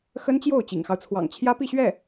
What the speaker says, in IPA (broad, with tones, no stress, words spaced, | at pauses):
xə˥nt͡ɕjo˥˩ʊ̯ t͡ɕḭ˨˩ŋxɑ˦ʊ̯t͡sʰwɑ̰˨˩ŋ t͡ɕʰjä˥pi˥˧ɕɥɛ˥˩